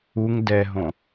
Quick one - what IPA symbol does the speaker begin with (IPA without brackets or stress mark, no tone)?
u